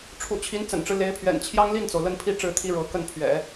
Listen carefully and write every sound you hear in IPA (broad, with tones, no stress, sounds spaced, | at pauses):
ʈ͡ʂʰ ṵ˨˩ t͡ɕʰ i˧˥ n t͡s ə̰˨˩ n ʈ͡ʂ ɻ̩˦ l e˧˥ ɪ̯ pʰ ɥ ɛ̰˨˩ n t͡ɕʰ j ɑ˥ ŋ l i˥˩ n t͡s o˩ ʊ̯ l ə˥˧ n pʰ i˥˧ ʈ͡ʂ ɻ̩˥˩ t̪ʰ i˥ ɻ ɤ˧˥ k ə˥˩ n pʰ ɥ ɛ̰˨˩˦